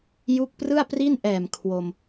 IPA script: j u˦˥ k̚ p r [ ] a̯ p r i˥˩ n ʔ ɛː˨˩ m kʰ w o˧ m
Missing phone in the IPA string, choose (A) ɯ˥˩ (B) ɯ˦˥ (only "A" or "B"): A